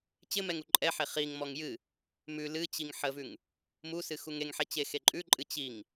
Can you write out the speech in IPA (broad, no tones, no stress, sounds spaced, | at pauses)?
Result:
t͡ɕ ɪ m ɛ ŋ u ǃʼ ɛ ħ e χ i ŋ m ɔ ŋ j ɨ | m ʉ l ɨ t͡ɕ i ŋ ħ ə v ʉ ŋ | m u s ɨ x u ŋ e ŋ ħ ɛ t͡ɕ e x e ǃʼ ʉ ǃʼ ɨ t͡ɕ i ŋ